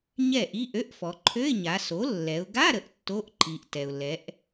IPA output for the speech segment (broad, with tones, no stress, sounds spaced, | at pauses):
ɲ ɛ˥˩ ʔ i˧˥˧ ʔ ø˧˥˧ ʔ f ɔ˩˧ ǃʰ ø˧˥˧ ɪ̯ ɲ a˩˧ s o˩˥ lː ɛ˩˧ ʊ̯ ɡ a˧˥˧ ɾ ə˩˧ ʔ tː o˧˥˧ ʔ ǃ i˩˧ ʔ t ɛ˩ ʊ̯ l ɛ˩˥ ʔ